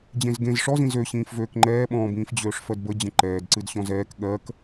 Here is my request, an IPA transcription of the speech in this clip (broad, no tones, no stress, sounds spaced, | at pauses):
d͡ʑ ẽ z ɡ ẽ z ʂ ɔ z ĩ z ø ɕ ĩː f v øː k ŋ͡ǃ ɛː ɓ ɔ̃ː b ĩː f d͡ʑ øː ʂ f ɜ d b ə d͡ʑ ə̃ ǃ ɛː d ǀ ɨ d ɕ ɔ̃ z ɛː k ɠ ɜ k